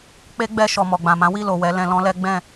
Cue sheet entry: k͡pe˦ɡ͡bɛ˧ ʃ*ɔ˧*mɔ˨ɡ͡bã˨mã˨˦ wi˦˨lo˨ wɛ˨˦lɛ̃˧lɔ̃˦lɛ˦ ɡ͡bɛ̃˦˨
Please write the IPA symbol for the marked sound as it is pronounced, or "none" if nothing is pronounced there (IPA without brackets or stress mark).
ɔ˨